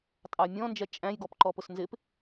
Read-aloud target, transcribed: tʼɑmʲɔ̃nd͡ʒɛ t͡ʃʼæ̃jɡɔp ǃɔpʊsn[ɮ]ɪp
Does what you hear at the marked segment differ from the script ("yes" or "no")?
yes